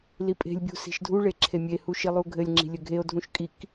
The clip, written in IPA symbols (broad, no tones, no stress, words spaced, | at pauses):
lipʼe̤lʲbʲṳ si̤ʃdʱuɭe ǁʰemʲehu ʃilˠuɡʱɘlʲŋ͡ǁi̤ lʲɘɡʱeo̯dʱũʃ kʼik